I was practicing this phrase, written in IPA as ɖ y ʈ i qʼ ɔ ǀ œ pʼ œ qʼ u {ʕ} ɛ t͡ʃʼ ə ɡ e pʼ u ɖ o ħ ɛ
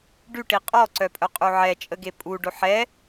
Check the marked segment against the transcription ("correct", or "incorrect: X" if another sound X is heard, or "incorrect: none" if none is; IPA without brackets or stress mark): correct